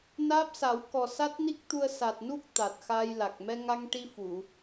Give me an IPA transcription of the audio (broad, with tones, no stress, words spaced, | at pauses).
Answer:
naː˦˥p̚sa˨˩˦wkɔ˨˩ sa˦˥t̚ni˦˥k̚t̪u˧ə̯ sa˨˩t̚nu˦˥k̚ t̪a˨˩t̚xa˧jla˨˩k̚ mɛ˧ŋa˧ŋʈi˧ fu˨˩˨